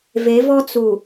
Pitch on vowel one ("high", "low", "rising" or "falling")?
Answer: rising